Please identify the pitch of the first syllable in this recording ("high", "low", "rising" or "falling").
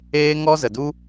high